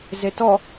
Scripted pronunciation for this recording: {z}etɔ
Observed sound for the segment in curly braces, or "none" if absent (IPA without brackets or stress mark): z